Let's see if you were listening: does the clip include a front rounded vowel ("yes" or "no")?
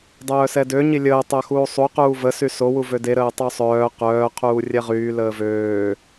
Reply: yes